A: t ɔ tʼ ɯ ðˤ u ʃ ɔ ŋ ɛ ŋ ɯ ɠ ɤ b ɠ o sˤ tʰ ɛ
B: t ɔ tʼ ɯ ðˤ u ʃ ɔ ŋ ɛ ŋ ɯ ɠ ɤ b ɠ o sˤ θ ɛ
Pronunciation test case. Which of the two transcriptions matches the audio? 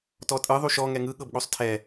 A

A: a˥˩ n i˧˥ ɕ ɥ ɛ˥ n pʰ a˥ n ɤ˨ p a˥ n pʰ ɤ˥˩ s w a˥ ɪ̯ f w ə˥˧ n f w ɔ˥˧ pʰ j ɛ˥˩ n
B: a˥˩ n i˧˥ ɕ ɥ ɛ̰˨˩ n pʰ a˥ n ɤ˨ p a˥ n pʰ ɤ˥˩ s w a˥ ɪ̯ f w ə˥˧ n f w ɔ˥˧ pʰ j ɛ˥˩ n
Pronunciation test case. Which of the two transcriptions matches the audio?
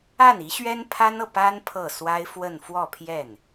A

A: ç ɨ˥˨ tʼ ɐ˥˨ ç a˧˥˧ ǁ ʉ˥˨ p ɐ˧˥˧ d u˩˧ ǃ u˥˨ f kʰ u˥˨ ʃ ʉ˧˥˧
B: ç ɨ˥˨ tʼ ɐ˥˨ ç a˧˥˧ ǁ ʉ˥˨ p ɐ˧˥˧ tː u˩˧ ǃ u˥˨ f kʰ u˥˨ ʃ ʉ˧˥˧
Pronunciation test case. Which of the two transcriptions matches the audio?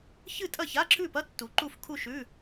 B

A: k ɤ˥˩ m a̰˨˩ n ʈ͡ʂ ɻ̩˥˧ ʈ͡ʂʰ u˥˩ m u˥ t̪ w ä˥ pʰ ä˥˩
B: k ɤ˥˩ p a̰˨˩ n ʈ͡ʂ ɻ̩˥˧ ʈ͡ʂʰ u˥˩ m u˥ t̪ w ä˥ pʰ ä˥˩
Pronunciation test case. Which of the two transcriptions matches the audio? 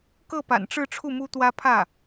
B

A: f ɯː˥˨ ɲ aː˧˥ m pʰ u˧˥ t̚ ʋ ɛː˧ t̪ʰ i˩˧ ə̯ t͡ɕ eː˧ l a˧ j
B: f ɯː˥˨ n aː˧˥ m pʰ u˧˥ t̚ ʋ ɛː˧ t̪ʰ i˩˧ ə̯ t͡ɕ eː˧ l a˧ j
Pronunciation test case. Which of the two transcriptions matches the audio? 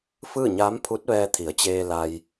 A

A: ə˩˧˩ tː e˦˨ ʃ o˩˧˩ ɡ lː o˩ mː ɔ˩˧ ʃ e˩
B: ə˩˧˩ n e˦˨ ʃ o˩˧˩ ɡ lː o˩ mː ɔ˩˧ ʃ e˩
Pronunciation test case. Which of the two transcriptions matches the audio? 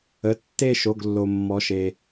A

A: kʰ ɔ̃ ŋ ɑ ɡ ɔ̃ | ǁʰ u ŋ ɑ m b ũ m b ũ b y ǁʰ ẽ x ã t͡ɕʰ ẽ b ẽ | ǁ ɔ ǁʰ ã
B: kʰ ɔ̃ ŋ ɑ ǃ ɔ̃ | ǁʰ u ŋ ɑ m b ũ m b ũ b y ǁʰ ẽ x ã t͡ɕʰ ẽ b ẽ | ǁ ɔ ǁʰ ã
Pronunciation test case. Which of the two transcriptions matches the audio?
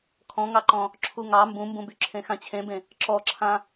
B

